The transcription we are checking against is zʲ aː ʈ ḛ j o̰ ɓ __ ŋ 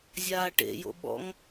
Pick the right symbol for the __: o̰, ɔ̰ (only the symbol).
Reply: ɔ̰